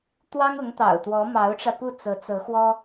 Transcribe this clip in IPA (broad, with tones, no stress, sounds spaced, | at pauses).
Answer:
t̪ w ɑ˥ ŋ ʊ˧˥ ŋ t̪ ɑ̰˨˩ ʊ̯ t̪ w ɔ˧˥ m ɑ˧˥ ʊ̯ ʈ͡ʂ ä˧ p u˥˩ t͡s ɤ˧˥ t͡s ɤ˧˥ x w ɔ˥